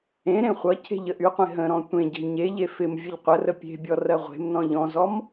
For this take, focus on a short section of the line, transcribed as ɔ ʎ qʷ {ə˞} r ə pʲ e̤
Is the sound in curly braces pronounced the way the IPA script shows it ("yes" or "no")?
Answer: no